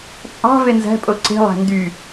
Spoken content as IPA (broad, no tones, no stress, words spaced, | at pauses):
t͡sʼɑ̤ venzæ̤pʼo ǀe̤lˠæ̤ ndy